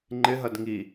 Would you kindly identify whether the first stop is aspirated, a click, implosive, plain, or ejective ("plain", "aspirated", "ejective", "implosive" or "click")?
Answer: click